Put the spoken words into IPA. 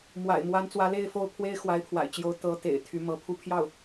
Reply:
m w a̰˨˩ ɪ̯ m w a˧˥ n t͡s w ä˧˥ l e˥˧ ɪ̯ f o˥˩ ʊ̯ pʰ w e˥ ɪ̯ x w a˧˥ ɪ̯ pʰ w a̰˨˩ ɪ̯ t͡ɕ j o˧˥ ʊ̯ t̪ ɤ˧˥ t̪ ḛ˨˩ ɪ̯ t̪ʰ y˧˥ m ɤ˧˥ pʰ u˥˧ pʰ j ɑ˥˩ ʊ̯

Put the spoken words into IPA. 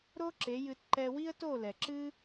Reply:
ɾ o˦ ǁ e˨˦ j ɨ˧ t ǃ ɛ˧ w i˦ ə̯ t o˦˨ l ɛ˨ ǁ ɨ˦

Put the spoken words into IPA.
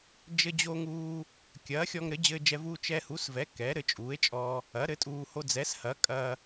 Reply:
d͡ʒ ɘ˧ d͡ʑ o˧ ŋ uː˧ | kʲ ɐː˩˥ xʲ ɔ˧ ŋ ɾ ɘ˩˥ d͡ʑ ɘː˧ d͡ʒ ɛ˧ v uː˧ t͡ʃ ɛ˧ h u˩˥ s v ɛ˩˥ k ɛ˩˥ ɾ ɘ˧ t͡ʃʼ uː˩˥ e̯ t͡ʃʼ ɔ˧ | ɐ˩˥ ɾ ɘ˩˥ tʼ uː˧ h o˧ d͡z ɛ˩˥ s h ɐ˩˥ kʼ ɐː˧

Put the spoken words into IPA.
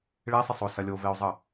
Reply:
ɭ e sˤ ɪ sˤ o s ɐ lʲ o v e o̯ zˤ ə

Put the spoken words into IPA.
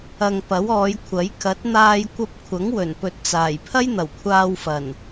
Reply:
ɐ˨ ŋ p ɐ˨˥ w ɔː˨˧ j kʷʰ ɐ˨˥ j k ɐ˨˥ t̚ n̪ aː˧ j kʷ ɐ˧ p̚ kʷʰ ɐ˨˥ ŋ w ɵ˨˩ n p ɵ˨ t̚ t͡s aː˨˩ j pʰ ɐ˥ j n̪ ɐ˨˩ w kʷʰ aː˧ w f ɐ˨˩ n

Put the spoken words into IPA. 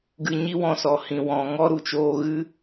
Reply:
ɡ ɨ˧ ɲ i˦ w ɔ̃˧ s ɔ˨ h ĩ˨ w ɔ̃˨ ŋ ɔ˦ ɾ u˨ t͡ʃ oː˧ ɣ ɨ˦

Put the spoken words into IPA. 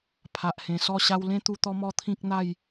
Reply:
pʰ a˨ ʔ h ẽ˨˩ s ɔ˥˧ ɕ a˧ w l ẽ˦ t̪ u˧ t̪ ɔ˦ m ɔ˦ t̪ʰ ĩ˦ k̚ n̪ a˥˧ j

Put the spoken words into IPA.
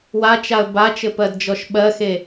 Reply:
w a t͡ʃ a ə̯ b a t͡ʃ ɘ p ɜ d d͡ʒ ɔ ʃ ɓ ɜ x e

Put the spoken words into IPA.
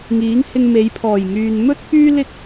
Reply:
ŋ iː˨˥ ŋ h ɪ˧ ŋ m e˨˧ j pʰ ɔː˨˩ j ŋ yː˨ n m ɵ˥ t̚ f yː˥ l ɪ˥ k̚

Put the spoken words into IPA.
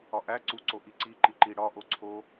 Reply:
ɒ ʔ æ ǀ u ǀ o ʔ i ǀ i ǃ i ǃ i ɽ ɒ ʔ o ǀʰ o

